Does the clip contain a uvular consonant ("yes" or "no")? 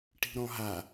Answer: no